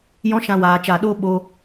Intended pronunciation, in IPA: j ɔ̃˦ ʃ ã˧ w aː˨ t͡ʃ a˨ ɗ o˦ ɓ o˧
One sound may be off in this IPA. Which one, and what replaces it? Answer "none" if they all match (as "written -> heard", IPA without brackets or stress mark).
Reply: none